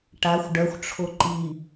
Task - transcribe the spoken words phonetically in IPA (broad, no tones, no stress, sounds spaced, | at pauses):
ʈ a xʷ ɖ œ xʷ ʈ͡ʂʰ o ǃ i